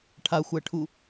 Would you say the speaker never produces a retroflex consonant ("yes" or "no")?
no